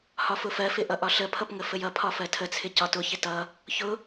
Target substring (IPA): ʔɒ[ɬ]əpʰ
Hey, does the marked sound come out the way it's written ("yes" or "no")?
yes